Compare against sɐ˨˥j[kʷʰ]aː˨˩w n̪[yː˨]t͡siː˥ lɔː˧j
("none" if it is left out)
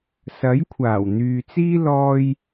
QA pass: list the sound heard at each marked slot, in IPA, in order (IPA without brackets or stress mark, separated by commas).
kʷʰ, yː˨